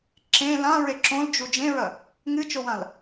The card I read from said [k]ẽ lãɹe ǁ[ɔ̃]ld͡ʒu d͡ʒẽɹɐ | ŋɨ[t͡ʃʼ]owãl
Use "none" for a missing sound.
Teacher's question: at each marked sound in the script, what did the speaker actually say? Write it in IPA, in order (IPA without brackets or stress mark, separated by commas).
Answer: ǁ, õ, t͡ʃ